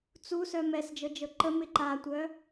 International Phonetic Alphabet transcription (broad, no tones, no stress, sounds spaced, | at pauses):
t͡s u s œ m ɛ s d͡ʒ ɤ d͡ʒ ɤ ǃ ə m ɪ ǃ a tʷ œ